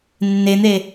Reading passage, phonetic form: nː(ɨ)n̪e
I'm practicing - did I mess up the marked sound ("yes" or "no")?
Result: yes